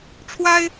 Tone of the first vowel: high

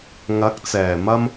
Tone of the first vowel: rising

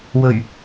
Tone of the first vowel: low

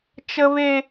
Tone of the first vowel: high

